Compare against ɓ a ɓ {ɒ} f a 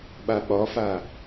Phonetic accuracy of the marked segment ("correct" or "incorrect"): correct